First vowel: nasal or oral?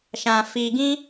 nasal